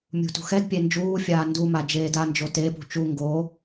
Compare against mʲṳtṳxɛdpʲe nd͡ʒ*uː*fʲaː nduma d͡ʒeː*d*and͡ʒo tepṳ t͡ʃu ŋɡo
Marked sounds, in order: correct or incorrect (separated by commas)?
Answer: correct, correct